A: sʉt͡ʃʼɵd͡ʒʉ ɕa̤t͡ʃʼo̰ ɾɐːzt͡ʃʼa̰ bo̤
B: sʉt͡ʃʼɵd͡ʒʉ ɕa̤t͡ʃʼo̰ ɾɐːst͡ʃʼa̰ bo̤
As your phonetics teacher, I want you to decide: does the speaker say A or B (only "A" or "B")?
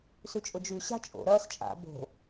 B